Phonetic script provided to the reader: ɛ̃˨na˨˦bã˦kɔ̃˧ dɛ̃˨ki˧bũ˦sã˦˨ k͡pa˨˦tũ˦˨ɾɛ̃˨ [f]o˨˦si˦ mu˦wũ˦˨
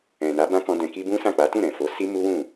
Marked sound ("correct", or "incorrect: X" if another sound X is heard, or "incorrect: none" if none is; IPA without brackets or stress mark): correct